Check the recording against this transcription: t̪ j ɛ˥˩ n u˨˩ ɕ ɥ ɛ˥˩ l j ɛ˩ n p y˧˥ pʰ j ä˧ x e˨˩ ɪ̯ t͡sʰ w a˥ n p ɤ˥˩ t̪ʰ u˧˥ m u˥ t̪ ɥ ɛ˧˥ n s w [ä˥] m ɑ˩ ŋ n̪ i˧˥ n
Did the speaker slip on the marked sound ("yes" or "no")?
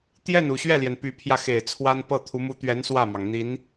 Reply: yes